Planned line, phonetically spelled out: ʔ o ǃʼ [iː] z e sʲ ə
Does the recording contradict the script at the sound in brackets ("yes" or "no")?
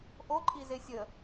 yes